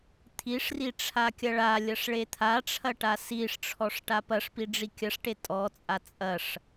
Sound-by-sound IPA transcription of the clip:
t̪ʰ i ʂ r i ʈ͡ʂʰ a kʲ ɐ ɭ a lʲ ɐ ʂ ɭ e t̪ʰ a ʈ͡ʂʰ ɐ ʈ a s i ʂ ʈ͡ʂʰ ɔ ʂ ʈ a p ɐ ʂ p i ɖ͡ʐ i kʲ ɐ ʂ ʈ e tʼ ɔ t͡sʼ a t͡sʼ ɐ ʂ

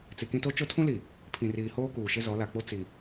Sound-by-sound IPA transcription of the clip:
t͡s i˨ k ĩ˦ t o˦ t͡ʃ o˦ tʰ ũ˦ l i˨ | pʰ ĩ˨ r iː˨ h oː˦ k uː˨ ʃ ɪ˦ z ɔ˨˦ l a˨ k͡p o˦ t͡s i˨

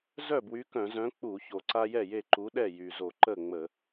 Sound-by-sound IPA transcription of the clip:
z œ˥˩ b w y˨˥ k œ̃˧˩˧ z œ̃˨˥ k͡p u˧˩˧ ç o˨˩ ǀ a˦ j ɛ˥˩ j e˥˩ ǃ u˨˥ ɗ ɛ˥˩ j y˨˩ z o˧˩˧ ǃ ə˥˩ ŋ͡m ə˧˩˧

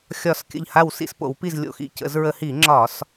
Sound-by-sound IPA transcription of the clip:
xʲ ɒ˧˩ s kʲ ə̰˧˩ ʎ h a˧˩ w s ḭ˧˩ s p o̰˧˩˧ w p i˧˩ z lʲ o̰˧˩ x ḭ˧˩ c ə̰˧˩˧ z ɹ ə˧˩˧ h i˧˩˧ ŋ͡ǁ ɒ˧˩˧ s

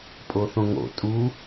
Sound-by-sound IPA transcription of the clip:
pʼ o θ õ ŋ o̰ tʼ u

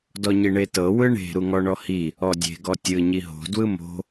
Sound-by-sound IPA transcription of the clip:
d ɔ ɲ i ɳ e t ɤ w ɯ ɳ e̤ ɾ u ŋ ɔ ɳ ɔ h i | ɔ dʲ e̤ ɡ ɔ tʲ ɯ ɲ i ɦ o̤ d w ɯ m o̤

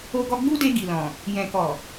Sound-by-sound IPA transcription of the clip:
o˧ ɡ ɔ˧ ɡ͡b u˦ d e˧ ɡ i˨ l ɔ̃˨ | j ɛ̃˨ k ɔ˨

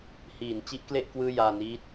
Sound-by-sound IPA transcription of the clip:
h iː˩˦ n t͡ɕ i˦˥ ʔ k l e˥˩ ʔ k w ɯː˥˩ j aː˧ n iː˦˥ t̚

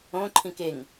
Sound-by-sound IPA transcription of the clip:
õ ǃʰ ĩ k e ŋ

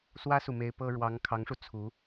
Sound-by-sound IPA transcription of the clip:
s w ä˥ s u˨ m e˧˥ ɪ̯ p ɤ˥ ɻ w ɑ˧˥ ŋ kʰ ɑ˧˥ ŋ ʂ u˧ t͡sʰ u˧˥

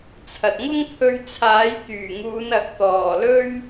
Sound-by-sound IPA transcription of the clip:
t͡sʰ ɐ˨ t̚ ŋ ʊ˥ ŋ t̪ʰ ɵ˧ ɥ t͡sʰ aː˨˥ j t̪ yː˨˩ ŋ uː˨˧ n ɐ˨˥ k̚ t̪ ɔː˨˩ l ɵ˥ ɥ

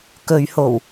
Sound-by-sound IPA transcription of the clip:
k ɵ˨ ɥ h o˨˩ w

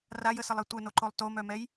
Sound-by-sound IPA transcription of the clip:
r a j ə s ə lˠ ɛ tʷ œ n o ǃ o lˠ t o m œ m ɛ j

